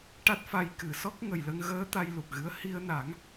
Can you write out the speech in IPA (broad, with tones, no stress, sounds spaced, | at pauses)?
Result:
ʈ a˦˥ t̚ f a˧ j k ɨ˨˩˦ s ɔ˦˥ k̚ ŋ ə˨˩ j l ə˧ ŋ ɣ əː˧˥ t̪ a˧ j l u˨˩ k̚ ɣ ɨ˧˥ ə̯ h i˧ ə̯ n a˨˩˦ ŋ